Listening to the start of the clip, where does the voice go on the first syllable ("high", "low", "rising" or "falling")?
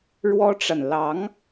high